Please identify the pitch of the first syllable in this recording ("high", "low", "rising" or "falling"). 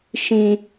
high